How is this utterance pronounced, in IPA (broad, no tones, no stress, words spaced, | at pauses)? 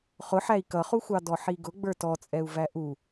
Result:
χʊħæi̯ kʌχuxʷɑ dɔħiɡʊ ɡ͡bə˞tɔt͡sʼɛu̯ væʔu